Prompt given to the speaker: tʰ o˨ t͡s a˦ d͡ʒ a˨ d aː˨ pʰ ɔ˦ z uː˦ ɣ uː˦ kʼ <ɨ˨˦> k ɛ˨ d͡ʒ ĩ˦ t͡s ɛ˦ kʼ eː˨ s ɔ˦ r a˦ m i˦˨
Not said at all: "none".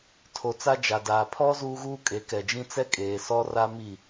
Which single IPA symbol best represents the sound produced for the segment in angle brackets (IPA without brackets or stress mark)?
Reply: e˨˦